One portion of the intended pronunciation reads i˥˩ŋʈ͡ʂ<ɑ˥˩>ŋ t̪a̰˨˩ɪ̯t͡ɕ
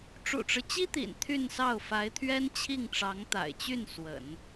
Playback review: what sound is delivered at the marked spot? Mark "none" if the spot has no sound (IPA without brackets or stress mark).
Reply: ɑ˧˥